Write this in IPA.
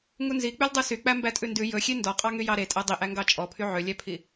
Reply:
ŋunzi k͡pyldˤʉsy k͡pæmbætʼʉndʉ jɵxʲe ndɔqʼɑŋy jɑɾetʼæ dˤiʔæŋɡɑ t͡ʃʼɔpʰy ʕølʲæpʰi

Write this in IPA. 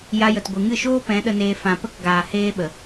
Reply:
ja˧jə˨t ɡʷɨ˨ŋɨ˦˨ʃoː˦ pɛ̃˨˦ɗə˧neː˧ fã˨pə˦k ɡaː˨ heː˦ ɓə˨

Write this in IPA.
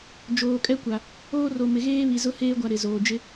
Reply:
d͡ʒoː˨kʼɛ˦kʷa˨ | oː˦ro˨mɪ˨ ɣeː˦βi˨zʊ˦ heː˦ɡʷa˨ ɾɪ˨zoː˨ d͡ʒɪ˦

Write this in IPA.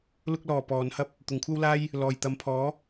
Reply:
lʊ˧k̚lɔː˨˩ pɔː˨˧nhɐ˥p̚ | t̪ʊ˨ŋkʷʰɐ˥wlaː˥j | lɔː˨˩jt̪ɐ˨˥mpʰɔː˨˥

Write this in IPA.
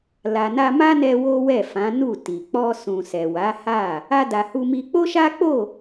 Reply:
la˨na˧ma˦nɛ˧ wo˦wɛ˦˨fã˨˦ nu˦˨ti˨ k͡pɔ˧sũ˨ sɛ˨wa˨˦ha˦˨ | a˧da˨hu˧mi˧ k͡po˦ʃa˦k͡po˦˨

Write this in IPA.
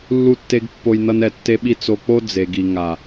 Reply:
lːu˦tːe˦ɡ pːo˧jnʌ˧n ɛ˨tːe˧ɓi˧ t͡so˧k͡po˦ d͡ze˨ɡi˨ ŋa˨

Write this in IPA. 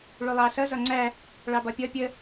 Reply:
ɭulˠɑsʌ zɒŋ͡ǀæ | ɭɑbɒpʲʌ pʲə

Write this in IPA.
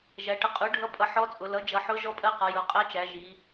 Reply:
ʒæ˩˧ʈə˩˥ qʼu˩˥ɖʱʌ˧˥ pʼʌ˩˥ħɔ˧˥t͡sʼʊ˩˧ lʌ˩˥d͡ʒʌ˩˧ ħʊ˧˥ ʒɔ˧˥pʼɜ˧˥qɒ˩˧ jʊ˩˥ qʼɜ˧˥t͡ʃæ˩˧ ʒi˩˧

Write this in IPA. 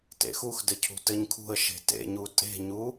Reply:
tḛxuxdɘ cʰṳtɘɲkʰṳə̯ ʃe̤tḛɲu tʼe̤ɲu

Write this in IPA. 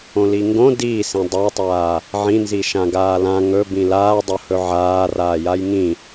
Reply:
õliŋɡõ diːsĩ dˤatˤaː | ʕĩnzi ʃãɡaːlã ŋɵ bĩlaːdˤo hɵʕaːraː jajŋĩ

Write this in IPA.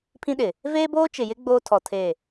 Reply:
pʰĩ˦ɗɪ˨ | veː˦boː˦t͡ʃɪ˨jɪ˦ ɡ͡boː˦tʰɔ˨tʰe˦˨

